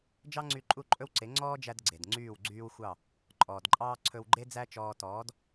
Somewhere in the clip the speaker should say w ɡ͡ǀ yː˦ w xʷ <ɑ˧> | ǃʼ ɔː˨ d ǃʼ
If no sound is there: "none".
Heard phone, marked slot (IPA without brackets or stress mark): ɑ˦˨